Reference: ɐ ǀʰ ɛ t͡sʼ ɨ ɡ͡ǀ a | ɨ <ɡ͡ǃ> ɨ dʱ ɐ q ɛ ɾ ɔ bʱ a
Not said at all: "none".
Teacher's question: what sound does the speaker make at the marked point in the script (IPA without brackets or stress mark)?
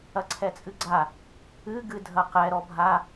ɡ